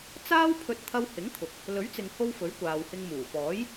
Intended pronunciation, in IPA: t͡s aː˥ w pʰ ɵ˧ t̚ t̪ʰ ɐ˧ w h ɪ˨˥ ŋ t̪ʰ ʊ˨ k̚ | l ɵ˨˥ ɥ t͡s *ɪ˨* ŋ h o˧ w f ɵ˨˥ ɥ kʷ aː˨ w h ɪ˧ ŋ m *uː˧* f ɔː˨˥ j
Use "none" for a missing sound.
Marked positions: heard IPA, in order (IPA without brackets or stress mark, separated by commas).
ɪ˨, uː˨˩